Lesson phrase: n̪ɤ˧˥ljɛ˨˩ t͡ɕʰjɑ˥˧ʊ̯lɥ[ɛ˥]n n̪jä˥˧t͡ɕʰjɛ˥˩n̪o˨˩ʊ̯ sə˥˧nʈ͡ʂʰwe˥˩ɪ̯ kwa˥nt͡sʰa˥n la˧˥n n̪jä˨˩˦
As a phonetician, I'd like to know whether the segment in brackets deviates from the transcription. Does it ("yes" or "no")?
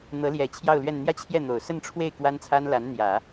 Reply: yes